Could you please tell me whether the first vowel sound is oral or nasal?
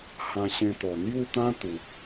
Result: nasal